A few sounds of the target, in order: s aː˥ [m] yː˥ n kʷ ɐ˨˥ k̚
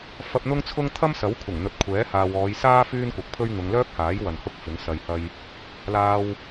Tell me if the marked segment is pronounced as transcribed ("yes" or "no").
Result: no